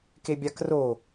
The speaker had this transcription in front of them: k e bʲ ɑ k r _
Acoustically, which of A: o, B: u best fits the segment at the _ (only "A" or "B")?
A